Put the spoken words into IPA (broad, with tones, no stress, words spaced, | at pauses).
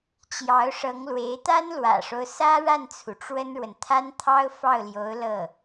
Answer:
t͡ɕjɑ˧˥ʊ̯ʂɤ˧˥ŋlwe˧˥ɪ̯ t̪a˥nlwä̰˨˩ʂo˦ʊ̯ sä˥ɻa˥˩nt͡sʰu˩ ʈ͡ʂwə˥nɻwə˨n t̪ʰa˥nt̪ʰɑ˥ʊ̯ fɑ˥˩ʊ̯ljo˧˥ʊ̯ lɤ˥˩